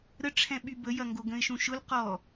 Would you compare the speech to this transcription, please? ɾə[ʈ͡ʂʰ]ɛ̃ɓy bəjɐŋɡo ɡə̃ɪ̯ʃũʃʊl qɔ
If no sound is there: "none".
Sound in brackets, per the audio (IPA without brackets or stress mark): ʈ͡ʂʰ